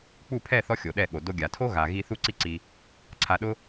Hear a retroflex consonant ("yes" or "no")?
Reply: no